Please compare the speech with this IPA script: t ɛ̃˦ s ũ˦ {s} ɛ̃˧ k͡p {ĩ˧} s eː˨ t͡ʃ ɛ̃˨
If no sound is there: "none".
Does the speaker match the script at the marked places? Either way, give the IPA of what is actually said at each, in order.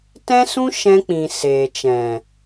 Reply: ʃ, ĩ˨

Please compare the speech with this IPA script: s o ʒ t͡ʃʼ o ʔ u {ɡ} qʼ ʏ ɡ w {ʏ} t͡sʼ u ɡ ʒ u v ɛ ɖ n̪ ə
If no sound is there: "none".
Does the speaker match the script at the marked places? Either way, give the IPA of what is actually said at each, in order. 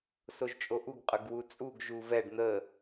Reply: ɡ, u

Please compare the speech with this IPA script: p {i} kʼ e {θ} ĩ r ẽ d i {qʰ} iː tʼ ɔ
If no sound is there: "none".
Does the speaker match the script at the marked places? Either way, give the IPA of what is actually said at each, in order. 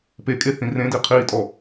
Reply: e, θ, qʰ

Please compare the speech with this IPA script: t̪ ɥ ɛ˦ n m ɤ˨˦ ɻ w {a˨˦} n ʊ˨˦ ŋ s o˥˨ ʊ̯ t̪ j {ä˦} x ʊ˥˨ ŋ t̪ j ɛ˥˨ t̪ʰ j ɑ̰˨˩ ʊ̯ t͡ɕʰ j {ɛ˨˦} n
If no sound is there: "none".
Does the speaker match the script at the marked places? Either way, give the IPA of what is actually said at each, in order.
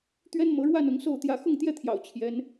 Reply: a˥˨, ä˦, ɛ˨˦

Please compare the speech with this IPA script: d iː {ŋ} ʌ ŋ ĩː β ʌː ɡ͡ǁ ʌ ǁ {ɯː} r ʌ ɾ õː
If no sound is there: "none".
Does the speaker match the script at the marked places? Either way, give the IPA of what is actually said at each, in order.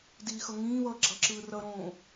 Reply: x, ɯː

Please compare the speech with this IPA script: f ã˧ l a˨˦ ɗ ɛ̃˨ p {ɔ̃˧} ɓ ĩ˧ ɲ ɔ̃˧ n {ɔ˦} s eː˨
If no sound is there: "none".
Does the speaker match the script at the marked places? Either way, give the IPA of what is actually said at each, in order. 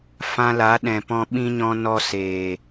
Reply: ɔ̃˧, ɔ˧

